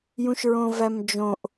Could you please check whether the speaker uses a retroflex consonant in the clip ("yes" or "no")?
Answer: no